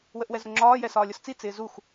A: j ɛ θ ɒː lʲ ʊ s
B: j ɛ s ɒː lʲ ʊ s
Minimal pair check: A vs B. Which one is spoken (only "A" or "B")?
B